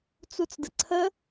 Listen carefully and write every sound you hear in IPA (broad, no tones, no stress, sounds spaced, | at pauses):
t͡s u t͡s d ə ǀʰ ə